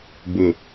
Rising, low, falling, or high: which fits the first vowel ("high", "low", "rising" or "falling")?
low